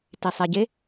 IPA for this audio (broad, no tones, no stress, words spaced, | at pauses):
tisˤeɟe